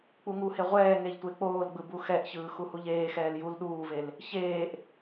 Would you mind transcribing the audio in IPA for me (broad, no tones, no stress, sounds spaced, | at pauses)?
k͡p u ŋ u h e ʁʷ ɛː ŋ e ʎ tʷ e k͡p oː l ɡ͡b ɯ b u x ɛ ʔ ç ɯː x u h u ʎ eː x ɛː l j u l ɗ uː v e l | ç eː ʔ